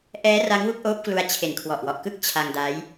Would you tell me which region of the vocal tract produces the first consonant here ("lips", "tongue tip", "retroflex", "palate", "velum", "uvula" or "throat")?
throat